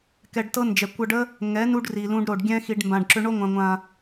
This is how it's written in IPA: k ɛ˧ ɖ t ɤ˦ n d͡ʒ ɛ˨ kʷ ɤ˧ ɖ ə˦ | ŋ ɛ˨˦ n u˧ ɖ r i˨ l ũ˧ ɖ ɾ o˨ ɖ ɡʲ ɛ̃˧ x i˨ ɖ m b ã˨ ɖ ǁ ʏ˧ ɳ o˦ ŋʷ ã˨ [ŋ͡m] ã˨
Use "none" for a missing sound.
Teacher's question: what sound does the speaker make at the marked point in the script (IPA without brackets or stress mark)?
ŋʷ